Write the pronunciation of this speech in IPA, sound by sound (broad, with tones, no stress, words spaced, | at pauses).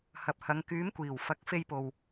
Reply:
hɐ˨p̚hɐ˨˧ŋ kyː˨˥mkʷiː˨˩wfɐ˨˥k̚ fe˧jpo˨w